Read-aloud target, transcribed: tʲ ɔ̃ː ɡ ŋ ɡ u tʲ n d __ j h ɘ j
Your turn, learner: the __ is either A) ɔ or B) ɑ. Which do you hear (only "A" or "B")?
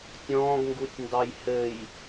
B